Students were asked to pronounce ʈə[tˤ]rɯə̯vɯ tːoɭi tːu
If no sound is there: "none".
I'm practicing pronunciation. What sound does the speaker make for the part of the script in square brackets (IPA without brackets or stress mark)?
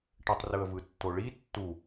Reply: tˤ